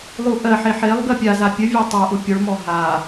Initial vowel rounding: rounded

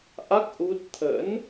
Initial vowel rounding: unrounded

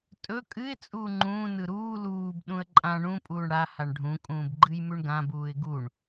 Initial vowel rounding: rounded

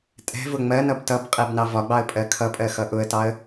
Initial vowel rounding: unrounded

